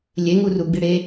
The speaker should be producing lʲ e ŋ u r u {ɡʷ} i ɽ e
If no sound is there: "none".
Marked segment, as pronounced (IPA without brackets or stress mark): ɡ͡b